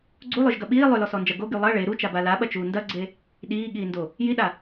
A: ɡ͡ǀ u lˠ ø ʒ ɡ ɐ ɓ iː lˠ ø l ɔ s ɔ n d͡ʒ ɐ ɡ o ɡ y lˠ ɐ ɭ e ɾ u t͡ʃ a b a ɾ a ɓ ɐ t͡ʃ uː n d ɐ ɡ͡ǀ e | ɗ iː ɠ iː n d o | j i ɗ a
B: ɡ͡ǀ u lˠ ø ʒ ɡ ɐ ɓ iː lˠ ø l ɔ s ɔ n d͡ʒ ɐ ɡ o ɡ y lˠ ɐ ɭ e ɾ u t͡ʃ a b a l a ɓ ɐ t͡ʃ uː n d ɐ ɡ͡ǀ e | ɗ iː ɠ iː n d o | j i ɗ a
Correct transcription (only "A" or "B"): B